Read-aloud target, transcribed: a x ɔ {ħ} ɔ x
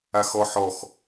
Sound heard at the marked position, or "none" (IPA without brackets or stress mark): ħ